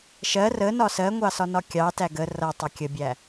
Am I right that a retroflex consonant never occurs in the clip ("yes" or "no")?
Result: yes